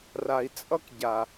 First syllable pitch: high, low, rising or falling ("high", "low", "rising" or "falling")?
low